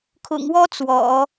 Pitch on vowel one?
low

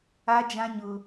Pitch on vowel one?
high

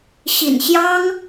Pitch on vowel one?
low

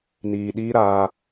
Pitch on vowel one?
low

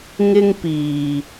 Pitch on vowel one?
high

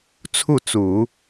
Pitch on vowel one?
falling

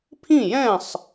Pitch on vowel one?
falling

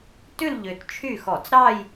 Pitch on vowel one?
falling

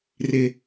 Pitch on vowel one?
low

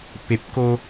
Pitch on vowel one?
low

